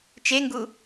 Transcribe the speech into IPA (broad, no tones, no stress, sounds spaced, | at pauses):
t͡ʃ e ŋ ɡ u